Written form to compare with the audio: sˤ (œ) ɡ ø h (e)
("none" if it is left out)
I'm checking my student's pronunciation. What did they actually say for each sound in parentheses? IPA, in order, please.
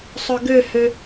œ, ø

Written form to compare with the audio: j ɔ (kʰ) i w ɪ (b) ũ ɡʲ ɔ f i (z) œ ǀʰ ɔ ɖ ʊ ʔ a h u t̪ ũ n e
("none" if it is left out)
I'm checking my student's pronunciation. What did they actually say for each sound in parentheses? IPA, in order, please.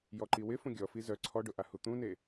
ǃ, f, z

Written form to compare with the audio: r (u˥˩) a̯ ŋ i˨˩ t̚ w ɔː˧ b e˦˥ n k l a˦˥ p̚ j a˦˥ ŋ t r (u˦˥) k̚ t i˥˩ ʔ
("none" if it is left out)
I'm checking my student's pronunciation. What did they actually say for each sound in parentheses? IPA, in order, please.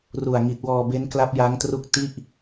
u˨˩, u˦˥

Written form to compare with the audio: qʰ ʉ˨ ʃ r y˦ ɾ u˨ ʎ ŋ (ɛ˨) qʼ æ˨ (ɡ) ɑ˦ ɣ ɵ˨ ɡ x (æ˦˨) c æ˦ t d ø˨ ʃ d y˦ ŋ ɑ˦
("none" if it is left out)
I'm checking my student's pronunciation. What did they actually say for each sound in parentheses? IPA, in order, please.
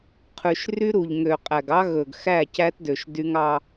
ø˨, ɡ, æ˦˨

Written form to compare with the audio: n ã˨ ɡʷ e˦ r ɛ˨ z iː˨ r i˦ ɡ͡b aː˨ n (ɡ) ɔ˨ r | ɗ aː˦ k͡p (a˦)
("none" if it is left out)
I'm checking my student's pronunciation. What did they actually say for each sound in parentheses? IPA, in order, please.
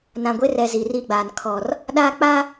kʰ, a˦

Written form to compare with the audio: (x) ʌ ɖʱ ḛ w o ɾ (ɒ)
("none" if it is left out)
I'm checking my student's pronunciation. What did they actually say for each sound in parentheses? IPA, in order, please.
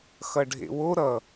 x, ʌ

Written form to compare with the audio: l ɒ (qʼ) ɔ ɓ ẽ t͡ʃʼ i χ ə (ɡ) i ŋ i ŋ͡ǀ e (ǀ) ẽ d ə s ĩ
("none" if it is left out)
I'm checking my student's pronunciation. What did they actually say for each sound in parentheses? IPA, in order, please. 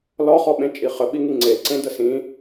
χ, ɓ, ǀ

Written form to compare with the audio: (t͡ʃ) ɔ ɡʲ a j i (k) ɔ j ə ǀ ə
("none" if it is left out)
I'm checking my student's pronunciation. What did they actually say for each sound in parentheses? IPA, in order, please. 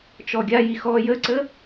t͡ʃ, x

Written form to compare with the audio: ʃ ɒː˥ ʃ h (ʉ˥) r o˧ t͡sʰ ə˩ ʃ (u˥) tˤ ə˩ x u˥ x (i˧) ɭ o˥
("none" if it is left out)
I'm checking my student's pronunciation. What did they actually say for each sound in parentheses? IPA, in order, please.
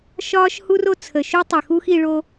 u˥, u˥, i˧

